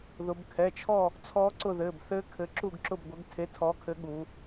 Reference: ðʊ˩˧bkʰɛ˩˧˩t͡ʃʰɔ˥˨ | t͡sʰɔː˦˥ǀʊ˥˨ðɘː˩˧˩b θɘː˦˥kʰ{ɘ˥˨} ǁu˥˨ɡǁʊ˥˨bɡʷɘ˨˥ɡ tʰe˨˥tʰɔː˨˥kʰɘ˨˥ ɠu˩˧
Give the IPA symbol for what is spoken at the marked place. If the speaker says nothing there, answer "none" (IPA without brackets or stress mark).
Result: ɘ˨˥